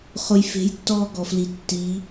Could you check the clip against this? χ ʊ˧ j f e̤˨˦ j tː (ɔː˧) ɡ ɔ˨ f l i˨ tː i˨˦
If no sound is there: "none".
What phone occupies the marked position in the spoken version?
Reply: ɔː˧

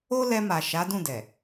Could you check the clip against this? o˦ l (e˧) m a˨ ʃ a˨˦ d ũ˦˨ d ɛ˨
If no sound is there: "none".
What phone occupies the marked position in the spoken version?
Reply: ɛ˧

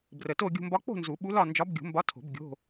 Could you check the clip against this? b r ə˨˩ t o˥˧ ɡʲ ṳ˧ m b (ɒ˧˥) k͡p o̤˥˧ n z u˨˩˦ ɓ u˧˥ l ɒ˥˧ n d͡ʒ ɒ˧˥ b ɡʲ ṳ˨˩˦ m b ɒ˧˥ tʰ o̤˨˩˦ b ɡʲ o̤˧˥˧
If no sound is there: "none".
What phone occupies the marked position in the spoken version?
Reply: ɒ˧˥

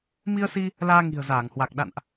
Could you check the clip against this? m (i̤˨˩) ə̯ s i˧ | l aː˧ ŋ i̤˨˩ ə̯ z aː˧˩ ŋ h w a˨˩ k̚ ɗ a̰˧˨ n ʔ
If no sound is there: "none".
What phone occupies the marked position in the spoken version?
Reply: i˧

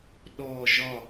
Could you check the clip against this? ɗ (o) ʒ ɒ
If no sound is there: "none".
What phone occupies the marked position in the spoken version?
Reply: ɔ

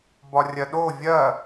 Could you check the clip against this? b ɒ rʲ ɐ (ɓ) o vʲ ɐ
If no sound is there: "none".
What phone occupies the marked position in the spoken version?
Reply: ɗ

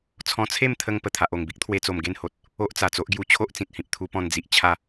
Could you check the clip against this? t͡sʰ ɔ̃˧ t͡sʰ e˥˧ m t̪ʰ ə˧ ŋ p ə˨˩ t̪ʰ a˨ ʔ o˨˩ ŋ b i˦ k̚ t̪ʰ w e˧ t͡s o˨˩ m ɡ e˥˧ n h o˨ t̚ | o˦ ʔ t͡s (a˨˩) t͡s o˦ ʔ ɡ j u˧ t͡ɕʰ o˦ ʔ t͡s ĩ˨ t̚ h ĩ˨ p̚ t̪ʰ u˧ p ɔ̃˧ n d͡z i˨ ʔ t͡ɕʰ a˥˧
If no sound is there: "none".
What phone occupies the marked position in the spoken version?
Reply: a˨˩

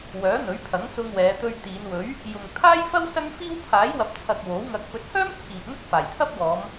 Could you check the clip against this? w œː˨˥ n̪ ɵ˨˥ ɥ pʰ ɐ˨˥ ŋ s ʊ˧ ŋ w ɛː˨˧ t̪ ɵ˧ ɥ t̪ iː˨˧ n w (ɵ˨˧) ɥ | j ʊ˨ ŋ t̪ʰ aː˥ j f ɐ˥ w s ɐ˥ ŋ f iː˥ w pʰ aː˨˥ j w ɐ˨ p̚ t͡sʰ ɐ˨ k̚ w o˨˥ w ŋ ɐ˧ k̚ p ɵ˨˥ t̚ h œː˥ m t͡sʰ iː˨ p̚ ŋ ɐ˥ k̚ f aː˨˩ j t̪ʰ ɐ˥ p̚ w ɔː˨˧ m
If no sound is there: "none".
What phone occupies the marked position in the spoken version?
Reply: ɵ˨˥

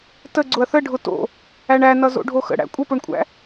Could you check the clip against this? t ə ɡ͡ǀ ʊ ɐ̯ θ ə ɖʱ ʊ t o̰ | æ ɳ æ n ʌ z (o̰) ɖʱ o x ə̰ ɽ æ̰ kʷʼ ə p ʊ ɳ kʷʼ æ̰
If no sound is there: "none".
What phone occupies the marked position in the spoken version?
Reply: o̰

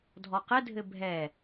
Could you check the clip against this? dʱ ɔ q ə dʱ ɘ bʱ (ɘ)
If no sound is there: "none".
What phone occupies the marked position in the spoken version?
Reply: ɛ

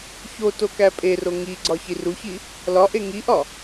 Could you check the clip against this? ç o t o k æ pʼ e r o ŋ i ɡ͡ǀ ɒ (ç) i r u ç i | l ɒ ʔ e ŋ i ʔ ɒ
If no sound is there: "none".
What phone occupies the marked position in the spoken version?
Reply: ç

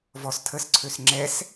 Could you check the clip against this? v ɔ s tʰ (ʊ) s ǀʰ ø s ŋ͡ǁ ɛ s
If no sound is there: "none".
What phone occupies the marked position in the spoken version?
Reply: ə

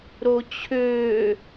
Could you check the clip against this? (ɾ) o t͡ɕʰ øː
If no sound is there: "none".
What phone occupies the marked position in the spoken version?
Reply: ɾ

